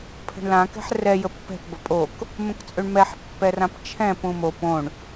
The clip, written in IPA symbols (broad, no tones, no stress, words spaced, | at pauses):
pʰə̤ɳlã kɛ̤ħrɛ jəpːɛ̤p bəpʼok | mə̃kt͡sʼøɳmɛħ pːɛrãpt͡ʃʰɛ̃ pũmo põɳ